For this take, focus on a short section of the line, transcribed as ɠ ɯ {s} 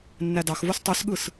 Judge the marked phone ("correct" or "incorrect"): correct